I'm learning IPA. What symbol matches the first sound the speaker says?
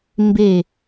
m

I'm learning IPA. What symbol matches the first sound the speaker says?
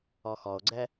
ɔ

